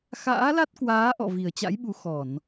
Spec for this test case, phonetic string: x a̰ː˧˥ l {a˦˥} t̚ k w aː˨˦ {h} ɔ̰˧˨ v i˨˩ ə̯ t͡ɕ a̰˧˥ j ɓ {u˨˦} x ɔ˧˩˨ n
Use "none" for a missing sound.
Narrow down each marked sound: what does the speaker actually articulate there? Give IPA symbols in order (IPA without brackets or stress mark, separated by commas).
a˦˥, ʔ, u˨˦